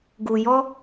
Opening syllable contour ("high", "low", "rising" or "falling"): low